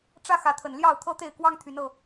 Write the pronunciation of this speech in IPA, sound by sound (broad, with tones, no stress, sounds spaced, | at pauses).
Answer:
ʈ͡ʂ ä˦ x ä˨˦ t̪ʰ ə˨˩ n l j ɑ˥˨ ʊ̯ t̪ʰ ɤ˦ t̪ e˥˨ ɪ̯ k w ɑ˦ ŋ t̪ʰ y˨˦ n ɤ˥˨